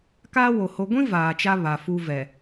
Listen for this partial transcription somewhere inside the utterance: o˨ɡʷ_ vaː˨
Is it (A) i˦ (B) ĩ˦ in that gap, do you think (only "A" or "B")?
B